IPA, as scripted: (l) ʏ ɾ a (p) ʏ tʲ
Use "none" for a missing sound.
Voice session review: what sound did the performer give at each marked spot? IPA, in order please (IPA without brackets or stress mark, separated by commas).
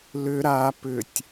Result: l, p